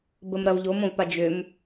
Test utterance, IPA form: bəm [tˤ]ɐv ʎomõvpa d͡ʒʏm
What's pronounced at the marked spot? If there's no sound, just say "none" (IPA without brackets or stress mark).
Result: ɾ